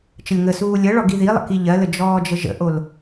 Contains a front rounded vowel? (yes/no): no